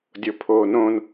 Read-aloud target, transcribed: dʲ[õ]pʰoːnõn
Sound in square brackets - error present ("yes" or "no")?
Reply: yes